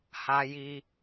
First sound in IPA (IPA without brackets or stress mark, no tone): h